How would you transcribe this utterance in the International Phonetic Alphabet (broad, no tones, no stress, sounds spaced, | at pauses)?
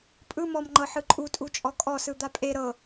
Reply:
pʼ ɯ m ɔ m ŋ͡ǃ ɤ ħ ɯ ǃʼ u tʼ u t͡ʃʼ ɔ kʼ ɔ s ɯ d̪ a pʼ e ɾ ɤ